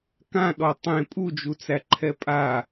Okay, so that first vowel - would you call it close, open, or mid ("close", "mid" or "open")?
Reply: open